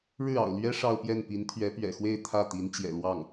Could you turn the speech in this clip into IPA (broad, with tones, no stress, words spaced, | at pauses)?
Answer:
ɻɻ̩˥˩ɑ̰˨˩ʊ̯lɥɛ˥ ʂɑ˥˧ʊ̯pjɛ˥˩npi˧˥n t̪ʰɥɛ˧˥pɥɛ̰˨˩xwe˥˧ɪ̯ t̪ʰä˥˩t̪i˧˥n t͡ɕjɛ̰˨˩lwɑ˥˩ŋ